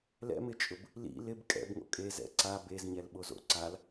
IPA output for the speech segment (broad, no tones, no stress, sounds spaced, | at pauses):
l ɛ̰ m ɪ t͡ʃʼ ʊ b | l ḭ l ɪ b kʼ ɛ̰ b ŋ o̰ kʼ e z ɛ̰ ǀ a b e z ɲ ɛ l ɓ o z o̰ ǀ a l